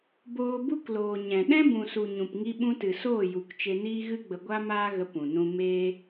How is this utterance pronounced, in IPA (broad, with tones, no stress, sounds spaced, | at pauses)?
b oː˧ b u˦ k l oː˨ ɲ ɛ̃˨ ɗ ɛ̃˦ b ũ˨ s u˨ ɲ ũ˨ p ŋ i˧ ɓ ũ˧ t ɨ˨ s oː˦˨ j u˨ k t͡ʃ e˧ n iː˦ ɣ ɨ˦ ɡ͡b ə˧ ɡʷ a˦ m aː˦ ɣ ə˧ p ũ˨ n ũ˧ m eː˧